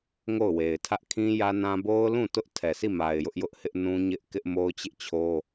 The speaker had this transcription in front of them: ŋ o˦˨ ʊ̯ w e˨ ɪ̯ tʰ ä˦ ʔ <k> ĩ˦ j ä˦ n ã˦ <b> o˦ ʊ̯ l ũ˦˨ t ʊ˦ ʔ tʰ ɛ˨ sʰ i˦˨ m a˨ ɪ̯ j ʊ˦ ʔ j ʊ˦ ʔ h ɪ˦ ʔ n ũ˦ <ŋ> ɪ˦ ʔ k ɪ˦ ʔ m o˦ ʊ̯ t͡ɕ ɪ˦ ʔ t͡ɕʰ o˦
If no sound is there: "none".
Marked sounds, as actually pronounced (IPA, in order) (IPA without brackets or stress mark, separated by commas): kʰ, b, ɲ